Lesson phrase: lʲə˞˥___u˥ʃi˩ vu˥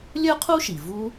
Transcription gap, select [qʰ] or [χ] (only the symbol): qʰ